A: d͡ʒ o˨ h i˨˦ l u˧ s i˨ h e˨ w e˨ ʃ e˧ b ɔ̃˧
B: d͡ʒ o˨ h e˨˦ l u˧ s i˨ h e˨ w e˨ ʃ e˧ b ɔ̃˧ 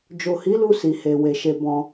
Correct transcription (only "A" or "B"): A